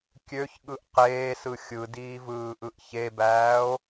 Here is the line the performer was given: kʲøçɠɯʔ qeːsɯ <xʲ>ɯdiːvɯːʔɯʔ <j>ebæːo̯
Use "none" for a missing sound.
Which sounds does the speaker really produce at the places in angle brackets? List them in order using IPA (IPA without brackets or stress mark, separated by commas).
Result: xʲ, ç